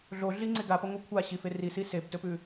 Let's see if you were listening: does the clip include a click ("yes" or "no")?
yes